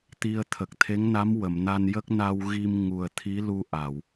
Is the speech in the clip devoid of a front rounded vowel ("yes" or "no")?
yes